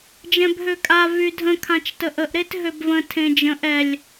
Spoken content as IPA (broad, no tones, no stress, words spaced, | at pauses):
d͡ʒɛ̃bɦøkʼa vydʱə̃ kʰãt͡ʃtəʔəʔ ɾetɦøbvə̃ tʰẽd͡ʒə̃ʔ ɛlʲ